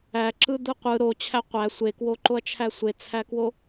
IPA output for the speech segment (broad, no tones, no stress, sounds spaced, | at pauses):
æ ǁ ɯ d̪ ɯ qʷ ɯ ɾ o t͡ɕʰ æ qʷ æ sʷ e k w o ǃ o ɐ̯ t͡ʃʰ æ sʷ e t͡sʰ æ k w o